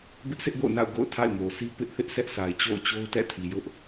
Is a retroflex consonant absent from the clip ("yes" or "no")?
yes